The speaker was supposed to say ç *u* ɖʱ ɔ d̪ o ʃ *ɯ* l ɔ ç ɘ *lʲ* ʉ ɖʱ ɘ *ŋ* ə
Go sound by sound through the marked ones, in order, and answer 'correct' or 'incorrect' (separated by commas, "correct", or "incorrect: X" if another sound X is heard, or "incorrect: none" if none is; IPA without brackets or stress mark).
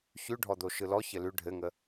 incorrect: ʉ, correct, incorrect: l, correct